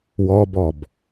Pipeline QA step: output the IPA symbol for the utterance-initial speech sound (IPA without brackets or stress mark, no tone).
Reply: w